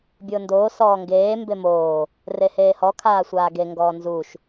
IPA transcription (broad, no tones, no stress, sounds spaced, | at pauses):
bʲ ʊː n d oː s ɔː ŋ ɡ eː m b e m oː | r e h eː h ɔ kʰ aː sʷ aː ɡ e ŋ ɡ ɔː n z u ʃ